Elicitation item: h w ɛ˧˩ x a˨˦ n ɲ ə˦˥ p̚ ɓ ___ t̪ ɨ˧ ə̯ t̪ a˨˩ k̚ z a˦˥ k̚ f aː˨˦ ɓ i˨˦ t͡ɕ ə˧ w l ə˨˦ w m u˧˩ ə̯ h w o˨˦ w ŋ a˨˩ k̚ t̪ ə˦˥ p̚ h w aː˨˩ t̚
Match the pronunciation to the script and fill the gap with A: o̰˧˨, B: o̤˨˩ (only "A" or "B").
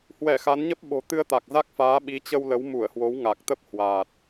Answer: B